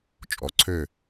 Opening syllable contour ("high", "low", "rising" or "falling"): low